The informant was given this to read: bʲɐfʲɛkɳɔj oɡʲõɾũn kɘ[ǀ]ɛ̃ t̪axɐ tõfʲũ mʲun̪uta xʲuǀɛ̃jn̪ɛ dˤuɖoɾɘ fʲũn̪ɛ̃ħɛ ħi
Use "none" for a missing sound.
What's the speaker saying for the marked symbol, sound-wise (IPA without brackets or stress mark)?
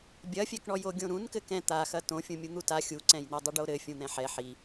k